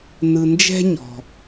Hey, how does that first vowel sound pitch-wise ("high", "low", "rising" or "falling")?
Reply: low